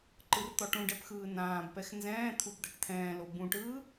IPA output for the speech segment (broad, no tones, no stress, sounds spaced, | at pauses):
ǃ ɯ r t̪ ɔ ʈ ũ ɖ ɛ p x ɯː n ãː b p ɛ x n z ɛ̃ː t̪ʰ u b d̪ ɛ ʈ t̪ʰ ɛ̃ː l o b ũ ʈ ɯː